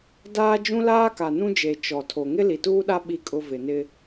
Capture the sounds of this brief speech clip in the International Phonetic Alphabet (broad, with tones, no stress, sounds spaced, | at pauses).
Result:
d aː˦ d͡ʒ ũ˦ l aː˦ k a˨ n ũ˦ d͡ʒ e˨ t͡ʃ ɔ˨ tʰ o˨ ŋ ɪ˦ l i˨ t uː˦ ɗ a˦ ɓ i˦ kʼ ʊ˦ v ɪ˨ n ɪ˦